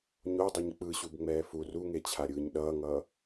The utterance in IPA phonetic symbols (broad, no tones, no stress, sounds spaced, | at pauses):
ɲ o dˤ ʌ ɲ k͡p ɯ ɕ u b ŋ͡m ɛː f u r u ŋ e t͡ɕʰ a ɾʲ ɯː ɲ ɗ ʌː ŋ ʌː